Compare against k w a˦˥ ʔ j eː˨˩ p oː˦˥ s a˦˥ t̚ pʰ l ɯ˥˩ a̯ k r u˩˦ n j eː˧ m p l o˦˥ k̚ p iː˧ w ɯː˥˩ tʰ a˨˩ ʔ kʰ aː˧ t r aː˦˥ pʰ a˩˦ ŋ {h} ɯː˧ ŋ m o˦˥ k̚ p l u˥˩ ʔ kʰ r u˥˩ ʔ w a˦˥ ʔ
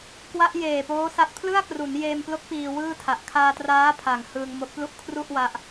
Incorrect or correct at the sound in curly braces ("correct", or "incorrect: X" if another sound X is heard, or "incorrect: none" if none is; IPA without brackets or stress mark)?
correct